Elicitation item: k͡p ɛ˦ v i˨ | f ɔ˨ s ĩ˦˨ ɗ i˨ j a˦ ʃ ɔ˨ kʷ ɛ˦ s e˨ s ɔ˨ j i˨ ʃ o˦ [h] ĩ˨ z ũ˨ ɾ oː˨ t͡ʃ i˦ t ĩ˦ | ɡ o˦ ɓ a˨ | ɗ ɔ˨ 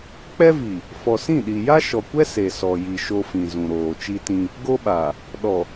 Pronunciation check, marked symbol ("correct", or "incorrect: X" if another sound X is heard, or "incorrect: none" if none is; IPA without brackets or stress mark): incorrect: f